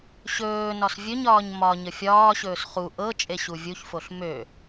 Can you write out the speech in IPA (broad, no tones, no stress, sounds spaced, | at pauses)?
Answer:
ɕ ɵː n ɒ s vʲ ɵ ɲ ɒː ɲ m ɒ ɲ ə fʲ ɒː ɕ ɵː s χ u ʔ ɤ t͡ʃʼ e ɕ u vʲ u ç f o ɬ m ø